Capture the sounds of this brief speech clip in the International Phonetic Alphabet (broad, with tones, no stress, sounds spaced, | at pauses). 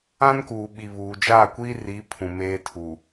ã˦ n k uː˨ ɓ i˨ β uː˨ d͡ʒ a˦˨ kʷ i˦ r i˨˦ pʰ ũ˨ m eː˦ tʰ u˨